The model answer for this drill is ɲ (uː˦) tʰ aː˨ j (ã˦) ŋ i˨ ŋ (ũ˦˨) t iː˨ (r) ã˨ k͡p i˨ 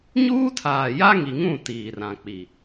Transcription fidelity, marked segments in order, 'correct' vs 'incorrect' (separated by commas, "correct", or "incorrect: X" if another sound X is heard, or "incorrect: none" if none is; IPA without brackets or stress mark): correct, incorrect: a˦, correct, correct